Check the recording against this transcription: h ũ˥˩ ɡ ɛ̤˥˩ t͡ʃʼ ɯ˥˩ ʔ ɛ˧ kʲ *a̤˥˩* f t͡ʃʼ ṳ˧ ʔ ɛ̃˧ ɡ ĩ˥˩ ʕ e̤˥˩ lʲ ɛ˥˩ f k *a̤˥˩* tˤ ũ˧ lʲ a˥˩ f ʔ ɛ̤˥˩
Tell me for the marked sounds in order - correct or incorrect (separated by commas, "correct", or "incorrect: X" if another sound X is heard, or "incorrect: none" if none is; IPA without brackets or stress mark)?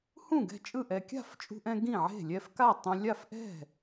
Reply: correct, incorrect: a˥˩